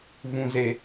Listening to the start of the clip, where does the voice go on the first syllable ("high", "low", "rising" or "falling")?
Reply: low